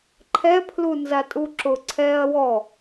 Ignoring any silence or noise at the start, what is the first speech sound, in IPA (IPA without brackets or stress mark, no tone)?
ǃʰ